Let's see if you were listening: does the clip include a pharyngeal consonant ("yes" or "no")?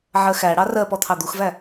yes